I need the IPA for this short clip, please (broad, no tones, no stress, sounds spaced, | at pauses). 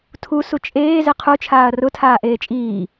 tʰ u s u t͡ʃʼ eː z e qʰ u t͡ʃʰ aː ɐ̯ r ʊ tʰ aː ʔ eː t͡ʃʼ iː